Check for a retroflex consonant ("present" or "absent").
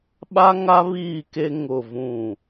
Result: absent